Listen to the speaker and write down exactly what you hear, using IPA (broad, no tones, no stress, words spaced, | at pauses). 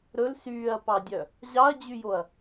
ɾɵl syːɐ̯pɑdʲœ | ʑɑɐ̯d͡ʑyjoɐ̯